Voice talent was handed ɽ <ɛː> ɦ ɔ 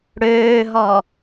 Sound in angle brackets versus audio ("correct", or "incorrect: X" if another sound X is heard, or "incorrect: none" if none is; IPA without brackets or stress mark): incorrect: øː